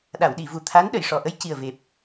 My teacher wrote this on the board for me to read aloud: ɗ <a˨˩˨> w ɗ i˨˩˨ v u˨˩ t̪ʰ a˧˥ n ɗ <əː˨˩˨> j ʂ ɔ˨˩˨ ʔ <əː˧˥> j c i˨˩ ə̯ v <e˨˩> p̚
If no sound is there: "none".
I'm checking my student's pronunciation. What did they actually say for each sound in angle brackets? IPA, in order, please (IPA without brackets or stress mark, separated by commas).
a˨˩˨, ə˨˩˨, ə˧˥, e˨˩